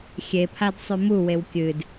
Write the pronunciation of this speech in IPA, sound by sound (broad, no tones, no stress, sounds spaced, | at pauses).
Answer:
xʲ e pʰ a d sˤ ʉ m u w e w kʲ ɨ d